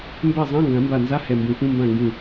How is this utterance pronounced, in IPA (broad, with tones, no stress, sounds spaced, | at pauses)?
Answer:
m b ɛ˥˩ zˤ ã˧˥˧ ŋ ɡ ã˨˩˦ m b a˧˩ n z a˧˥˧ h ɛ˧˩ m b ũ˨˩˦ f ũ˧˥˧ m b ã˥˩ ŋ ɡ ũ˧˩